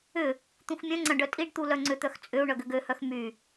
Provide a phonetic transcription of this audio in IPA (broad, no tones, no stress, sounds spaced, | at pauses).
ʏ | t̪ ũ x mʲ œ̃ ŋ͡ǀ ɐ̃ ɖ œ tʼ i ɖ t̪ u l œ ŋ͡ǀ ʏ t̪ œ x t͡sʼ ʏ u̯ ɳ œ ɡ ʏ ɡ ø h œ x m y